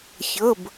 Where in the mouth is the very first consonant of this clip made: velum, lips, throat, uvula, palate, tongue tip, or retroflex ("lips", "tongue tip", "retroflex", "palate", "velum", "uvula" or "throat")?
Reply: palate